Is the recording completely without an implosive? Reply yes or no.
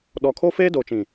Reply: no